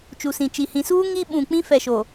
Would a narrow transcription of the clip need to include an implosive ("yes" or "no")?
yes